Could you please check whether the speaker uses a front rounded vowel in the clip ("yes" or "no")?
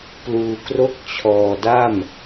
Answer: no